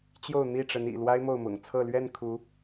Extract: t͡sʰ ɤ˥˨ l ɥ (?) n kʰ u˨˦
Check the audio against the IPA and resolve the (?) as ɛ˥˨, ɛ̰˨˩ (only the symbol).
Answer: ɛ˥˨